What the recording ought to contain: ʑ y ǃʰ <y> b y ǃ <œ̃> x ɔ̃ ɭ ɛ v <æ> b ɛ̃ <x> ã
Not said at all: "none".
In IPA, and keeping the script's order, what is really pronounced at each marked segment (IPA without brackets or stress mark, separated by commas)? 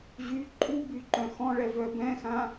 u, œ̃, œ, x